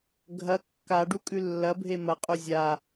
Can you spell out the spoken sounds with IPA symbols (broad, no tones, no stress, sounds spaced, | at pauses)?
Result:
ɡʱ ɐ kː a ɖ u kʼ ʉ lː ɐ bʱ e m ɐ qʼ u zʲ a